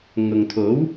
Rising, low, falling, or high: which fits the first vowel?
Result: low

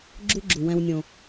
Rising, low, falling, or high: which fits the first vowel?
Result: high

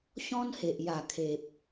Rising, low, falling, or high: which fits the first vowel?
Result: high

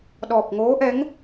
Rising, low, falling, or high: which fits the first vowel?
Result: low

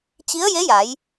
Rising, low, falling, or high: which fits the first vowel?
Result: rising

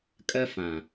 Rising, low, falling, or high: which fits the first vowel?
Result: high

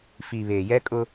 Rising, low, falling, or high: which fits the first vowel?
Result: low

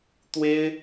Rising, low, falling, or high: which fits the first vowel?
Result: high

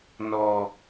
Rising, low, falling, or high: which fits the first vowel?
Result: high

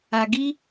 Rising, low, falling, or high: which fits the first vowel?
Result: low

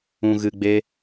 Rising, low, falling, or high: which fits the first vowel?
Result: low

